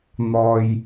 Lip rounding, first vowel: rounded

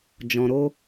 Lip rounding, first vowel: rounded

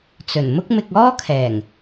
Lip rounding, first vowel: rounded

